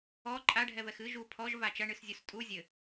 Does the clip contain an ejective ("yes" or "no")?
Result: yes